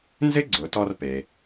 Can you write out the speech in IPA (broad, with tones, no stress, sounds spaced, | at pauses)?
n z ɪ˥ ɡ͡ǀ ʊ˩˧ t ɔ˧ r p e˩